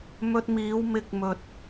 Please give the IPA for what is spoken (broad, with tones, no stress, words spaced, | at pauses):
mɵ˧t̚miː˨˧w mɪ˧k̚mɵ˨t̚